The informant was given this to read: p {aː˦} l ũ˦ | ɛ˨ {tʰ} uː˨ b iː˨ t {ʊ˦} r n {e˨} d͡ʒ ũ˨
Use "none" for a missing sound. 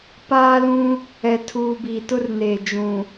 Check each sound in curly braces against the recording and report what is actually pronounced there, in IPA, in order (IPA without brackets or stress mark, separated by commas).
aː˦, tʰ, ʊ˦, eː˨